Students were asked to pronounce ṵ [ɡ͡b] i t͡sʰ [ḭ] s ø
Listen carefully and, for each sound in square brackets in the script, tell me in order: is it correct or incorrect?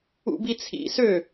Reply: incorrect, correct

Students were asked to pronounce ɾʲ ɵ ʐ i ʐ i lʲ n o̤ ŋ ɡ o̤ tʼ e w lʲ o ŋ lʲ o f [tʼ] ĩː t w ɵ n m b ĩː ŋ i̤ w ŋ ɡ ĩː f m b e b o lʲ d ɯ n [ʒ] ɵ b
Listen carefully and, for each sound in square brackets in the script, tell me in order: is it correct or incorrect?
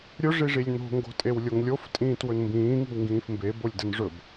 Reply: correct, incorrect

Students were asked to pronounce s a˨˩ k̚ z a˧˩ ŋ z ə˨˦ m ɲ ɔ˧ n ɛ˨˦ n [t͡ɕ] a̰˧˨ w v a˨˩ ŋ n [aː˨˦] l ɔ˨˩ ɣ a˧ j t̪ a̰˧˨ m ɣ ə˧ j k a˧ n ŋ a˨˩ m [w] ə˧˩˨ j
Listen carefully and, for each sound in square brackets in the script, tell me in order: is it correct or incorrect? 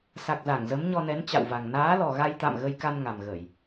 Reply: correct, correct, incorrect

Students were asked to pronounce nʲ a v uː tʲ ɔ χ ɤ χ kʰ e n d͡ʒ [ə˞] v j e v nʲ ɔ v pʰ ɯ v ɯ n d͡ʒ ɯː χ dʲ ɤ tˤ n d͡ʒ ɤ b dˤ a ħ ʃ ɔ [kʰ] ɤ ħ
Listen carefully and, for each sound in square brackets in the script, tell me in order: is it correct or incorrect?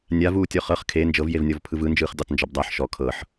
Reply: incorrect, correct

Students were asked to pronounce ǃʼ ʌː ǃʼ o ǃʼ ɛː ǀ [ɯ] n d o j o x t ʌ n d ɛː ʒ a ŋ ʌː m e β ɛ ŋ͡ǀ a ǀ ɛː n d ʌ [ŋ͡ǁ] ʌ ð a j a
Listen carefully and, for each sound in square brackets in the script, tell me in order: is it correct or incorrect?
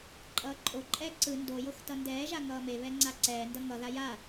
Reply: correct, incorrect

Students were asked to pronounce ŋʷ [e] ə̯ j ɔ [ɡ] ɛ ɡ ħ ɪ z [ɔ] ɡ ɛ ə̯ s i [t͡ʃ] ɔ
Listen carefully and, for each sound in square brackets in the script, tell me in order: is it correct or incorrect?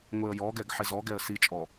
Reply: correct, correct, correct, incorrect

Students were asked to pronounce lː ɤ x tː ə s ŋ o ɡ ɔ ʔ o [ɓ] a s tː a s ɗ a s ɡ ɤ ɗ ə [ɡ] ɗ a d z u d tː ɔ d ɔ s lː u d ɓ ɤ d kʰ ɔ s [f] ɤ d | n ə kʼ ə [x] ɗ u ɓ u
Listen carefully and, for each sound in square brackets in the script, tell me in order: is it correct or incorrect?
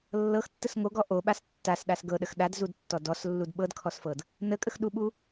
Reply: correct, incorrect, correct, correct

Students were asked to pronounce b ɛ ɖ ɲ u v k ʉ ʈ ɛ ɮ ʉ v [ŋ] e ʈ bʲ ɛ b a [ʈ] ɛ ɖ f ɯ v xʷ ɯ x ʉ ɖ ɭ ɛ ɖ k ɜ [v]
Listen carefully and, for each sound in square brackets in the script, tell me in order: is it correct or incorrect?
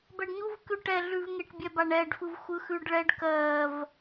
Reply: correct, incorrect, correct

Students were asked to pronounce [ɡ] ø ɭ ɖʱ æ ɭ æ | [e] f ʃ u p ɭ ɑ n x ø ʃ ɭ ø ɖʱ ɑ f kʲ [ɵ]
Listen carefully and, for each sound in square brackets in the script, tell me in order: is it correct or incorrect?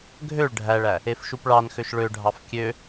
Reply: incorrect, correct, incorrect

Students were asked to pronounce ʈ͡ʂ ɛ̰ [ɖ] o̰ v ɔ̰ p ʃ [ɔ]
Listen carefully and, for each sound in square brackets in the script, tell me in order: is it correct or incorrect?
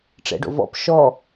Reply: correct, correct

